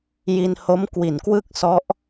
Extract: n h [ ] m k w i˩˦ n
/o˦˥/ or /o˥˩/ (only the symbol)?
o˦˥